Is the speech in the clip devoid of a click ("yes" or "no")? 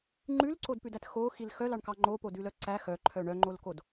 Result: no